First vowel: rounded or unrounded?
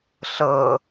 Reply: unrounded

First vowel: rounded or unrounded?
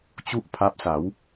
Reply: rounded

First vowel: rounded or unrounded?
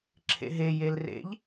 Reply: unrounded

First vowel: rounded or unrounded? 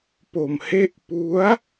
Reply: rounded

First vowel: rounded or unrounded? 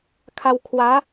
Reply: unrounded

